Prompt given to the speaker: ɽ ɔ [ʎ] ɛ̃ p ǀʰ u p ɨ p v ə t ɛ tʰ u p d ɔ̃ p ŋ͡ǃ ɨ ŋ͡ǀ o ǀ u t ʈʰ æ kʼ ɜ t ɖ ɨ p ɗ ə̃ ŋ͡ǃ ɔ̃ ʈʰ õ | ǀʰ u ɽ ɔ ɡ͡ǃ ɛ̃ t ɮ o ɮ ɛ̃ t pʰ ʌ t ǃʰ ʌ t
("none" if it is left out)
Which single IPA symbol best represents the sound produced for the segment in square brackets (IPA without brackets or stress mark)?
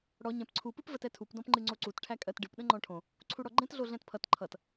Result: ɲ